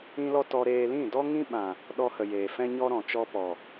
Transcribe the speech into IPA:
ĩ˦ l ɔ˦ t ɔ˧ ɾ eː˧ l ĩ˦˨ d ɔ˦ ŋ ĩ˦ ɓ ã˨ | ɗ ɔ˧ h ə˨ j eː˨ f ɛ̃˦ ɲ ɔ˦ ɾ ɔ̃˨ t͡ʃ ɔ˧ p ɔ˨

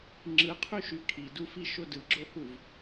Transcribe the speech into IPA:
ŋ͡ǁ ɯ qʰ y ʃ y kʰ i d u f i ʃ o d ɯ ɡ͡ǁ o h u v

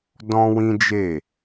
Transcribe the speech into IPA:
d ɔ̃˦ w ĩ˦ d͡ʒ e˦˨

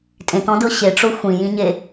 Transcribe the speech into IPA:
tʼ ẽ t ɔ̃ d ɤ ɕ e ʈ͡ʂ o xʷ ĩ j ĩ ɲ e

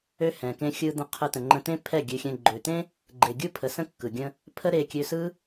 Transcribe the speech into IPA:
ø˦ h ɛ̃˨ k ẽ˧ xʲ ɯ˧ d̪ ə̃˧ qʰ ɯ˧ t̪ ə̃˨ ŋ͡ǃ ə̃˧ t̪ ẽ˦ pʰ ɛ˦˨ ɡʲ ø˧ xʲ ɛ̃˧ ɡ͡ǃ ø˨ t̪ ẽ˦ | ɡ͡ǃ e˨ ɡʲ ɯ˦ pʰ ə˨ s ə̃˦ kː ɯ˨ ɡʲ ə̃˦ | pʰ ə˦ ɾ e˧ kʲ ø˧ s ɯ˦

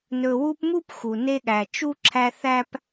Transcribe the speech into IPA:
n ɵ˨ w u˦ p m u˥ p x u˩ n e˦ ɠ æ˨ t͡ʃ u˥ ǁʰ æ˦ θ æ˥ p

